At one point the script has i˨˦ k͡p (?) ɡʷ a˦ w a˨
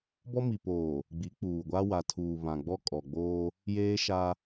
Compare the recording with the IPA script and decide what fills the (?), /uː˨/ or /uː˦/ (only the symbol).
uː˨